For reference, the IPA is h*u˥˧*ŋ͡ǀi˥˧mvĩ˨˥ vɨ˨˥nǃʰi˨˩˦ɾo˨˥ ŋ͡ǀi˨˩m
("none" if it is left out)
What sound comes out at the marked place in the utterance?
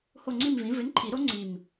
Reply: o˥˧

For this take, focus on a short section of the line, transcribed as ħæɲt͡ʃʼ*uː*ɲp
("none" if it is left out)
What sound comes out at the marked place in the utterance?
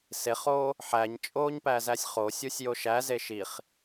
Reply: oː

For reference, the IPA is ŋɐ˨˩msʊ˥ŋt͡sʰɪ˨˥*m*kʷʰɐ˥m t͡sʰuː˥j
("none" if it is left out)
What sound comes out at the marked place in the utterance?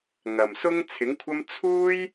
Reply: ŋ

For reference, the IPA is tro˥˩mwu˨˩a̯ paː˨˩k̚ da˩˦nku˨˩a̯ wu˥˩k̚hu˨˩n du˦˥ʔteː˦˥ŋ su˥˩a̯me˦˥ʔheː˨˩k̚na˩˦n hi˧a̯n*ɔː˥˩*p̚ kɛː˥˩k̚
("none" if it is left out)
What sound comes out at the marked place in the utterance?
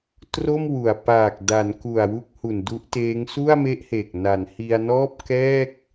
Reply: ɔː˥˩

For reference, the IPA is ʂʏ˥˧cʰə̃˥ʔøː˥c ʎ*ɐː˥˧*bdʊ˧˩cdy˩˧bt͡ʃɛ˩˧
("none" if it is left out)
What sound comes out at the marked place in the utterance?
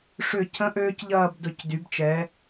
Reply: ɐː˥˧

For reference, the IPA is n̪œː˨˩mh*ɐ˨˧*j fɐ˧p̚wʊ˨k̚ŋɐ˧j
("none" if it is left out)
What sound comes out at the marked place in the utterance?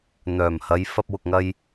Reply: ɐ˨˧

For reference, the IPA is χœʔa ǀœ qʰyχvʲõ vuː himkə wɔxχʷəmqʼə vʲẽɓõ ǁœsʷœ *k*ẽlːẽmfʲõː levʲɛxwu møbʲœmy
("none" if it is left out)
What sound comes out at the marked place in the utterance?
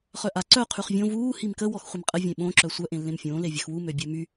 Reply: ʔ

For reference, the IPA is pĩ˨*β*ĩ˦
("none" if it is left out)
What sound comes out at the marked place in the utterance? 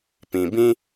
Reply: b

